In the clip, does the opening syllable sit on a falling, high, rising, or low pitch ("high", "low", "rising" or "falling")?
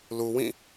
low